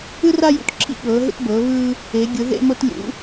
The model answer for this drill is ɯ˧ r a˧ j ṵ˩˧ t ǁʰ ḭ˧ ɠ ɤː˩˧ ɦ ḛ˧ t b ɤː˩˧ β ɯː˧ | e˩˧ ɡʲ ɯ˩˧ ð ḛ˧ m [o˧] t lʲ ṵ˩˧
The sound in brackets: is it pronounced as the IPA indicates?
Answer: yes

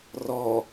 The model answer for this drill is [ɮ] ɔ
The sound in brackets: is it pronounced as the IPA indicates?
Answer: no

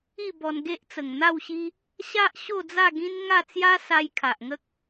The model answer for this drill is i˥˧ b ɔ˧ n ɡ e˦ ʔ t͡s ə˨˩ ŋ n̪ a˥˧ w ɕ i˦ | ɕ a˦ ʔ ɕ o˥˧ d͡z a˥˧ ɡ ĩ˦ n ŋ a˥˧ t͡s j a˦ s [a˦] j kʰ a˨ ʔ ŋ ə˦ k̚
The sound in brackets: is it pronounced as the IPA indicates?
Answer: no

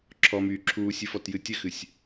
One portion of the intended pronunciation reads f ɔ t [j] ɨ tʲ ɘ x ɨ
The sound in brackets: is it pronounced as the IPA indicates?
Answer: yes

